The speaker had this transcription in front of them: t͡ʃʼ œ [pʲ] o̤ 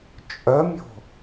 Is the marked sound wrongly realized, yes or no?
yes